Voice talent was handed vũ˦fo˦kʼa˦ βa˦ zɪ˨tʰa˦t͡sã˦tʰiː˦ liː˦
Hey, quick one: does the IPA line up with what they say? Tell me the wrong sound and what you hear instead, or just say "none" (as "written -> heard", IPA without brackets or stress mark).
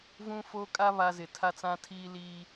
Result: none